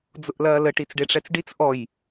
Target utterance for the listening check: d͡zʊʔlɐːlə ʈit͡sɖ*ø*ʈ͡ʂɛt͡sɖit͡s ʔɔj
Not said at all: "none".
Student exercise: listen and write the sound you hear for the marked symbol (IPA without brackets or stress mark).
e